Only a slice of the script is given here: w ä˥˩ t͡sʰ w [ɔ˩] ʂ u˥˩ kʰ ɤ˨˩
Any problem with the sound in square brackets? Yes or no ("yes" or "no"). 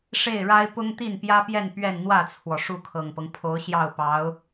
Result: no